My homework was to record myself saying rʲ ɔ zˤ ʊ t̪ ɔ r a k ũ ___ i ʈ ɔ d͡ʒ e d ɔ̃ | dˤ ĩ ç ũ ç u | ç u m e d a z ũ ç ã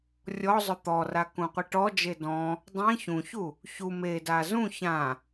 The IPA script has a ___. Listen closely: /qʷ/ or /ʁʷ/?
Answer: qʷ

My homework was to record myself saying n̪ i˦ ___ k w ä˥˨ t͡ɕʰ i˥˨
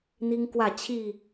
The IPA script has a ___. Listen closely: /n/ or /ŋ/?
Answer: ŋ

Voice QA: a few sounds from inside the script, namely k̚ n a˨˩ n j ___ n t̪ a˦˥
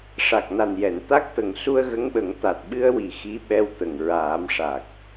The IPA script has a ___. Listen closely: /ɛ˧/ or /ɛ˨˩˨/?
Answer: ɛ˨˩˨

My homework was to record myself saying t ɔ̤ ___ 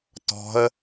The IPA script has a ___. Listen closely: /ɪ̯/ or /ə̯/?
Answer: ə̯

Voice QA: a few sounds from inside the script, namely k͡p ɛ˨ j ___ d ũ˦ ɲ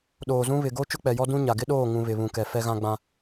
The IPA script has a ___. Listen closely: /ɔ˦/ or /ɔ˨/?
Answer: ɔ˦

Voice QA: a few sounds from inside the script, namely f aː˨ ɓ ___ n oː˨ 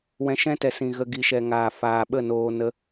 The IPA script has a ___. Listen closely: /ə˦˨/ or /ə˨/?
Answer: ə˦˨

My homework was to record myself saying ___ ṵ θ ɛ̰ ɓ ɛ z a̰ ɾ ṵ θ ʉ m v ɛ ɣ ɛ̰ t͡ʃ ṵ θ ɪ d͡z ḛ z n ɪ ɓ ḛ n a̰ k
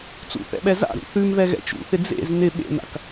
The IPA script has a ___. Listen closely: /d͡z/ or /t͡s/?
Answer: t͡s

